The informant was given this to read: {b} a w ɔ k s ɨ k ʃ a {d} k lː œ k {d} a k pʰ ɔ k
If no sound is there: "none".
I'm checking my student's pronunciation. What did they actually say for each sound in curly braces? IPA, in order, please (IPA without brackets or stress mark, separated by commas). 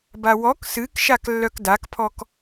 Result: b, none, d